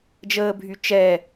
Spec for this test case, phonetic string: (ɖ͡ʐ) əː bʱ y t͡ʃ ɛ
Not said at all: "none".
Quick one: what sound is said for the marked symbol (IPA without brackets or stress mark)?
d͡ʒ